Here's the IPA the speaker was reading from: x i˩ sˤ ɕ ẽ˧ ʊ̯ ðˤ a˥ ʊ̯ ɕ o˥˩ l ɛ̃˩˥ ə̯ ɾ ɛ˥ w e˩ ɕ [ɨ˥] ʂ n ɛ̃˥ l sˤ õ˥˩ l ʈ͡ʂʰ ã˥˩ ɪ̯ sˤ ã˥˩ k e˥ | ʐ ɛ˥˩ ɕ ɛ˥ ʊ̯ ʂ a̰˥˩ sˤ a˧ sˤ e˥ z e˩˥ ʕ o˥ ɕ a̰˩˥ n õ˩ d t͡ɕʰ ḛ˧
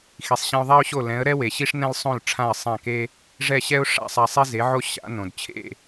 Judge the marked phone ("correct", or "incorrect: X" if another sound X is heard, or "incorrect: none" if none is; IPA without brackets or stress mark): incorrect: i˥